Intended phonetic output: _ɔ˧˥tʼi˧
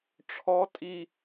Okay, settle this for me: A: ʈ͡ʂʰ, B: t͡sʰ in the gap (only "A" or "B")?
A